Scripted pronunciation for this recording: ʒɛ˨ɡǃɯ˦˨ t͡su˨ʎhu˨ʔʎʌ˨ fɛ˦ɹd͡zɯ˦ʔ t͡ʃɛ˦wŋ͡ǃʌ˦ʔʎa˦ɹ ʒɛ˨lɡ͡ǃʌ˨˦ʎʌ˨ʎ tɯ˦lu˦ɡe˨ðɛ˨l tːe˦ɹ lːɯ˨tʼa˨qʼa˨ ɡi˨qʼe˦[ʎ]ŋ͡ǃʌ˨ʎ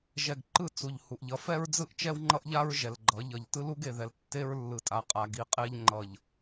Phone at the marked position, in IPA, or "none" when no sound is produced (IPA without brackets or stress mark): ʎ